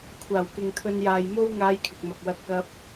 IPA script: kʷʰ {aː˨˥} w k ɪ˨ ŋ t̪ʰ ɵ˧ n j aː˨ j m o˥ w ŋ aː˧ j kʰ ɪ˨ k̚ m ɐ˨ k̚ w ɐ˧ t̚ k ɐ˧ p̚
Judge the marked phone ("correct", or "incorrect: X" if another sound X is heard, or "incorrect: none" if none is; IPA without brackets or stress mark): incorrect: aː˨˩